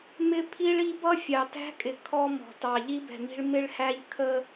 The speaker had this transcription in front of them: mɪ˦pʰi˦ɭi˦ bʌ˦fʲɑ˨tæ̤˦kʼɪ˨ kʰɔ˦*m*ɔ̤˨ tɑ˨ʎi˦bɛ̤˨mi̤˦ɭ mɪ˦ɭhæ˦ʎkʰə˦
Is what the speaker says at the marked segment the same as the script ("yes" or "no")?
yes